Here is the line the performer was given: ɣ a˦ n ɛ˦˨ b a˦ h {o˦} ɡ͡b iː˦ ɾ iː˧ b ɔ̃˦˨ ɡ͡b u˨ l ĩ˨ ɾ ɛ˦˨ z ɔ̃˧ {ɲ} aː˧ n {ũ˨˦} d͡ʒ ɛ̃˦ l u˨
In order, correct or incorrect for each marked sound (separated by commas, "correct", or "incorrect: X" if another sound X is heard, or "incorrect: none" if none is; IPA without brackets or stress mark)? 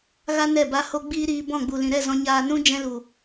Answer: correct, correct, incorrect: ũ˦